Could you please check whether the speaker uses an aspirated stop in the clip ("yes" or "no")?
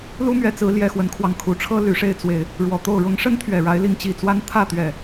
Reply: yes